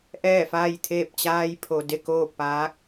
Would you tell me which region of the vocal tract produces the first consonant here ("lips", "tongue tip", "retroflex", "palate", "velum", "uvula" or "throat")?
throat